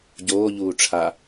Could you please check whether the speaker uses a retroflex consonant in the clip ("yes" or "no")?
yes